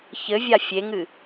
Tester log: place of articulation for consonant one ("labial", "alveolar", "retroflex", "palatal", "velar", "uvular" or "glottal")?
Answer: palatal